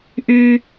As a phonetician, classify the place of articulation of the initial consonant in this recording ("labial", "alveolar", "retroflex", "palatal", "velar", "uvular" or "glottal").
glottal